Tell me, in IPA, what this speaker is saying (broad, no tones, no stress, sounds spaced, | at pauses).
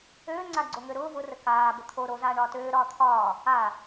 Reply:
øː ŋ͡ǀ a ɡ͡ǀ o ŋ ø ɾ ʊː v ʊ r ə k aː b ə t̪ʰ o ɾ o z aː ɳ ɒː t øː ɾ ɒː t̪ʰ ɒː | a